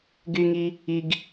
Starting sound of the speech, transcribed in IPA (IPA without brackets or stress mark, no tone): ɡ